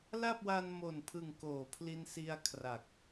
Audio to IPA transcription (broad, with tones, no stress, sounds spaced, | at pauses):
l a˥˩ p̚ w a˧ n m o˨˩ n pʰ ɯ˨˩ ŋ k oː˩˦ pʰ l i˧ n s i˧ a̯ kʰ r a˨˩ k̚